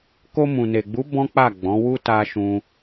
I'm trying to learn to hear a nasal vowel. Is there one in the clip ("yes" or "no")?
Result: yes